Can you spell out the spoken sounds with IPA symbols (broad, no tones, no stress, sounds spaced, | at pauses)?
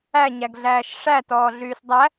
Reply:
æ ɲ æ ɡ ɮ æː ʃ ʂ æ t ɔː ɮ yː s dˤ æ